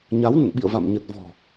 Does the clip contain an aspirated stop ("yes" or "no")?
no